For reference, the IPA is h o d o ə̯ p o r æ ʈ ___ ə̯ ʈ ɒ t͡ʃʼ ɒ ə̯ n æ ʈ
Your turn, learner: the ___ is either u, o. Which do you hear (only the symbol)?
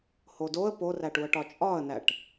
u